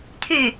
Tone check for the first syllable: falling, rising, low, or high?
falling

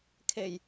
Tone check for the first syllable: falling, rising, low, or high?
low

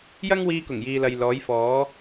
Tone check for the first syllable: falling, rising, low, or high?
high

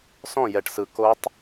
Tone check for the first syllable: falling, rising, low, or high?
falling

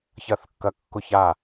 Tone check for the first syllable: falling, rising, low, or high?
falling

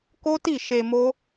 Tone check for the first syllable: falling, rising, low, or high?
high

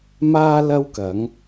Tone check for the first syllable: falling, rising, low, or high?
high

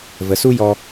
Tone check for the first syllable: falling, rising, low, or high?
low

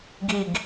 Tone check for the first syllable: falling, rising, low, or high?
falling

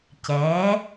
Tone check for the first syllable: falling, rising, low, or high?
rising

